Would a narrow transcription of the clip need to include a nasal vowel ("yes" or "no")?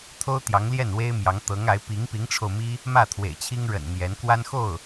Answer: no